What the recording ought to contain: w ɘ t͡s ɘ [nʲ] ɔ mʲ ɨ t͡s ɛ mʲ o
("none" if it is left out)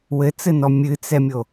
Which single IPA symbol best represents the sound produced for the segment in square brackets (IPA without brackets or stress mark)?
n